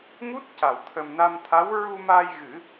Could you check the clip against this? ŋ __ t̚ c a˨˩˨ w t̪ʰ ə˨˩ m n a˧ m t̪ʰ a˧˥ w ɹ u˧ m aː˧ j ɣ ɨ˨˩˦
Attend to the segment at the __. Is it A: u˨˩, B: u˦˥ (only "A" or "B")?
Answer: B